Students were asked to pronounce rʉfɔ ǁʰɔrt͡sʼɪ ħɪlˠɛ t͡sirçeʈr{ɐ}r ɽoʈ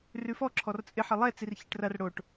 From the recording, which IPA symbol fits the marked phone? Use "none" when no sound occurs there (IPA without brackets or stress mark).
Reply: ɐ